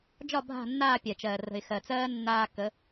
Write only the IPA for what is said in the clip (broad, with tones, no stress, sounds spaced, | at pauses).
d͡ʒ ɒ˦˨ bʱ a̤˦˨ nː aː˦˨ pʲ ɛ˨ t͡ʃ ɜː˨ r ə̤˨ ɪ̯ x ɜ˨ t͡s ɜː˦ nː aː˦ k ə˨˦